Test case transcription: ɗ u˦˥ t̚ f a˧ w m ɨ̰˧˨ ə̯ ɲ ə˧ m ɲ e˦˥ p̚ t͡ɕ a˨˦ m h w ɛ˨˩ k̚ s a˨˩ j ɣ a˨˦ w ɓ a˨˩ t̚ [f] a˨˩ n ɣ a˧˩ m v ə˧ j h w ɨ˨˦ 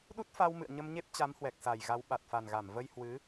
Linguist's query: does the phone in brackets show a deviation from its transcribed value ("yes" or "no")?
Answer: no